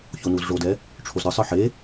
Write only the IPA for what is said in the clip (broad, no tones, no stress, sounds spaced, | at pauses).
ç o n u z ʐ o d ɛ | ʈ͡ʂʰ o z ɾ ɯ sˤ ɯ ħ e